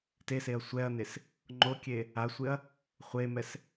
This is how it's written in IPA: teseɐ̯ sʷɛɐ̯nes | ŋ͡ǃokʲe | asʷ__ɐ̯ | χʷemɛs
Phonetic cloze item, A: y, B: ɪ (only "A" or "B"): B